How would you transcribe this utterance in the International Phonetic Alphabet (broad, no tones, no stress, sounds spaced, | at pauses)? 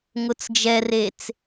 ŋ ʊ t͡s d͡ʒ ɛ r e t͡s